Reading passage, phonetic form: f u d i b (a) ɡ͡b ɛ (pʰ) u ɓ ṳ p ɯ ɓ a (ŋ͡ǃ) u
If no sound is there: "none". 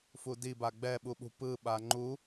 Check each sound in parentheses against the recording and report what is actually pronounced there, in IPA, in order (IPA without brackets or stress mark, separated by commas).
a, ɓ, ŋ͡ǃ